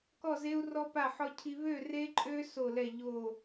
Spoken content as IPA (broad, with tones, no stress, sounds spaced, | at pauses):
k ɔ˥˨ z e˦˥ u̯ r ɔ˦˥ p a˥˨ ħ ɔ˦˥ cʰ i˦˥ β ø˥˨ r e˦˥ ǃʼ ø˦˥ s o˥˨ l ɛ˥˨ ʎ o˥˨